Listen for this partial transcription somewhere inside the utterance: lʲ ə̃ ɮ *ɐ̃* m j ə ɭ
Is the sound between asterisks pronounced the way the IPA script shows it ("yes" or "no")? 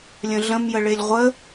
no